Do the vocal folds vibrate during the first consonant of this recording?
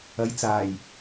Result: yes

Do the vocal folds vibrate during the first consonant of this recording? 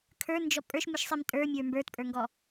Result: no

